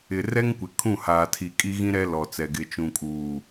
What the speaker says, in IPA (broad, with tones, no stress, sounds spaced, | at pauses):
ɪ˨ r ɛ˦ ŋ kʷ ɪ˨ kʰ ũ˦˨ h aː˨ tʰ i˨ kʼ i˦ ɣ ĩ˦ ɾ ɛ˦ l ɔ˨ t͡s ɛ˨ ɡ ɪ˨ t͡ʃ ũ˨ kʼ uː˨